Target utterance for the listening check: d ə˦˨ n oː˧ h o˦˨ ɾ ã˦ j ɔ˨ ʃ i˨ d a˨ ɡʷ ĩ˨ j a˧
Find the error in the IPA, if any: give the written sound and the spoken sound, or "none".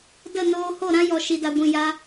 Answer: none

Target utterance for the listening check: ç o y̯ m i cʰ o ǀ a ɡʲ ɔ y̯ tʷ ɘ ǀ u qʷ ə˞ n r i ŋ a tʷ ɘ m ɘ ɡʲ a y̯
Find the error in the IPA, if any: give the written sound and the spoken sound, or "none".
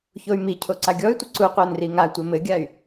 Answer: none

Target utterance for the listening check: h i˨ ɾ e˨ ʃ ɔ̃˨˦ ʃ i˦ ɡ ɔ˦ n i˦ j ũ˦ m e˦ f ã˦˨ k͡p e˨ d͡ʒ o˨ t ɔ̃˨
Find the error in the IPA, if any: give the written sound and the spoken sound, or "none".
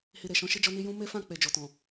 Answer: ɡ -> d͡ʒ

